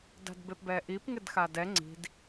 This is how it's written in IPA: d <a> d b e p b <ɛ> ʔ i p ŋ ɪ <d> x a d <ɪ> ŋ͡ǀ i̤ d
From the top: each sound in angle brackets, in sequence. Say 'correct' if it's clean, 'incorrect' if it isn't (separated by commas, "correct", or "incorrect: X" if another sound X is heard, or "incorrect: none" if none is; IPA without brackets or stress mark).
incorrect: a̤, correct, correct, incorrect: ɛ